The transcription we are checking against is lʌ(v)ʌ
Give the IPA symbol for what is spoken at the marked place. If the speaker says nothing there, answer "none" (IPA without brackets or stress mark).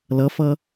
f